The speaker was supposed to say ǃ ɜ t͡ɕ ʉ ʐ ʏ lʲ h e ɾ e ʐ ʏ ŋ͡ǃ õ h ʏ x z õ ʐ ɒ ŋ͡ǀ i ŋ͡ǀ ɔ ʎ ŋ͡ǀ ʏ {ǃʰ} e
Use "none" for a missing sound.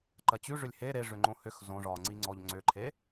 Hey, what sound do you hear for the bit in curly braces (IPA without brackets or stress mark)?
ǃʰ